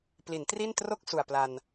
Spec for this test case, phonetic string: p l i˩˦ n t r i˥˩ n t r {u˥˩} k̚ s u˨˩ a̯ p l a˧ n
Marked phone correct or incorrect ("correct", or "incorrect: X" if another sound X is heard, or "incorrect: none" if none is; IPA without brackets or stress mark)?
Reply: incorrect: o˥˩